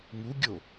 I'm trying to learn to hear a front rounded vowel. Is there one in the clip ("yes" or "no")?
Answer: no